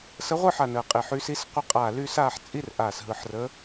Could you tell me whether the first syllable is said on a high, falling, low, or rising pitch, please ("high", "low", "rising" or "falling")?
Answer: rising